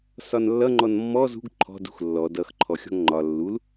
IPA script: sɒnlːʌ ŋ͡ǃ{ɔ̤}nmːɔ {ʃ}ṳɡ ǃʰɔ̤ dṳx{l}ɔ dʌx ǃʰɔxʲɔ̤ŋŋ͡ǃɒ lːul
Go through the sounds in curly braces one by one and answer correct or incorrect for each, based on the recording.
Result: incorrect: ɔ, incorrect: z, incorrect: lː

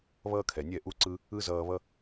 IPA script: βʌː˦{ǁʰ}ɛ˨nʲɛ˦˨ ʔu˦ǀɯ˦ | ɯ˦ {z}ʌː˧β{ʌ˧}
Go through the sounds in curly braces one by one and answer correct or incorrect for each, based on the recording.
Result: incorrect: kʰ, correct, incorrect: ʌ˦

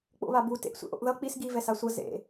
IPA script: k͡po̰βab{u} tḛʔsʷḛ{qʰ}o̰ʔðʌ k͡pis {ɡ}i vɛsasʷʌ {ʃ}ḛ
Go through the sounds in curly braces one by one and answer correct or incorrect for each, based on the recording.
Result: correct, incorrect: ʔ, correct, incorrect: z

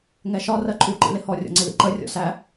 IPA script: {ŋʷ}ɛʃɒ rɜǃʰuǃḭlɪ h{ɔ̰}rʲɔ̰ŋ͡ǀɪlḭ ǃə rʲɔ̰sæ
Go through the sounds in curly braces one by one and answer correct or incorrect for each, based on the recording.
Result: incorrect: ŋ, incorrect: ɔ

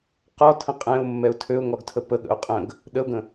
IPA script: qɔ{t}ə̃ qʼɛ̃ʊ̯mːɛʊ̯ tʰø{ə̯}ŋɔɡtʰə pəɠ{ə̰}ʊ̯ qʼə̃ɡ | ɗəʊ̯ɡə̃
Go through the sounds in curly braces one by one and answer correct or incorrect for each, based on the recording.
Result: incorrect: tʰ, incorrect: ʊ̯, correct

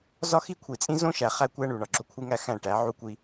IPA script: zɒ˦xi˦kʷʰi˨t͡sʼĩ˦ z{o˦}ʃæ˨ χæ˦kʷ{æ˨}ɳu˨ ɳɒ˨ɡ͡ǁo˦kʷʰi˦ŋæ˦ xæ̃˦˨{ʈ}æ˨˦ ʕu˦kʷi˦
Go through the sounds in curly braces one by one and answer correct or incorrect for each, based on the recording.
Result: incorrect: õ˦, incorrect: æ˦, correct

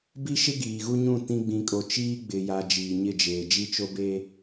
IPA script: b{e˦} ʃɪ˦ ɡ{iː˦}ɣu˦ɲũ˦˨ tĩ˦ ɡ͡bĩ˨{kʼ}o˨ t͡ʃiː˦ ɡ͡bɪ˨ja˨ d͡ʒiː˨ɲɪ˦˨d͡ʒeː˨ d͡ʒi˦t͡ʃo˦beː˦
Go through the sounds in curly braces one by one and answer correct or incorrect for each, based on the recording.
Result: incorrect: i˦, incorrect: iː˨, correct

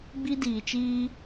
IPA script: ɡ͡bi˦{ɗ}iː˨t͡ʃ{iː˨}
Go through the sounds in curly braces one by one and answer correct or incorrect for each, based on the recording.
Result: incorrect: d, incorrect: iː˦

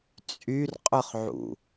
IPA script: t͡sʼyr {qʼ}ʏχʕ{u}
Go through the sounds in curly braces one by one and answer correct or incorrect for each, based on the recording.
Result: correct, incorrect: ṵ

